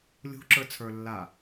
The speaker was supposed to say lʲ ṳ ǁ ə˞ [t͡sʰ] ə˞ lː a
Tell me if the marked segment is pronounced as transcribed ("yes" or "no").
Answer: yes